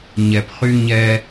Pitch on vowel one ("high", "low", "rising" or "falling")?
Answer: low